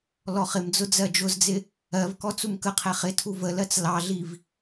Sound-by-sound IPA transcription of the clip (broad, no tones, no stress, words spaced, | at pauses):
lɔχɪmd͡zʊ d͡zɜd͡ʒʊzd͡zɪ | ɜvkɔ t͡sumkəqʰɛ χɪ tʰuvəlɜt͡s lɑɮiv